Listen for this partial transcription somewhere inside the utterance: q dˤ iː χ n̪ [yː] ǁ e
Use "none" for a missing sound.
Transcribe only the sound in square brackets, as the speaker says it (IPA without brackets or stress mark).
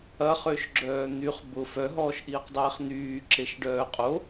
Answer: yː